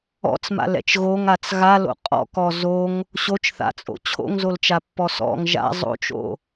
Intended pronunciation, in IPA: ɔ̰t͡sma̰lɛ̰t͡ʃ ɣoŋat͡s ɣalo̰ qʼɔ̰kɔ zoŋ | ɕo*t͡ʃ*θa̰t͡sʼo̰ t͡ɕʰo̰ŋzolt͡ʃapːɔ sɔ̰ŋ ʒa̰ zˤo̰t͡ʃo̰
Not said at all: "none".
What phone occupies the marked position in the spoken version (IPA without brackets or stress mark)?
t͡ʃ